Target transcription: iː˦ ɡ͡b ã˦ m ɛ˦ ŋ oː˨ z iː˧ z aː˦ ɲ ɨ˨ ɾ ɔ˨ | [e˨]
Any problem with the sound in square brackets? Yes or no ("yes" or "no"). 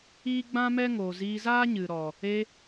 yes